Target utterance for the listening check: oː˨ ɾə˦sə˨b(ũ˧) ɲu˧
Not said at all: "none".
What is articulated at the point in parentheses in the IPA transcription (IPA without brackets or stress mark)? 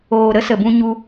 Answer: ũ˧